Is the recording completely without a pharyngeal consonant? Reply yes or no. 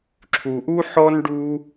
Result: no